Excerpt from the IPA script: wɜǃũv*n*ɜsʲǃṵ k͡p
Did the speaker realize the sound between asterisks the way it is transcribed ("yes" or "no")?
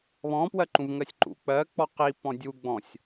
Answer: no